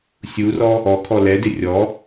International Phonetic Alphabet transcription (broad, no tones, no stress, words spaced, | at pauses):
sʲurɔ | ɔkʰɔ lɛdɪ rʲɔ